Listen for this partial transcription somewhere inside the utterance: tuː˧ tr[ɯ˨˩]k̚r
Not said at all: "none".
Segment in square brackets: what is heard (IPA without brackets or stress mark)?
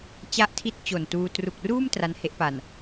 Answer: u˨˩